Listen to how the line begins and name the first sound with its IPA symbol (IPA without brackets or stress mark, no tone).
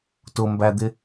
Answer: t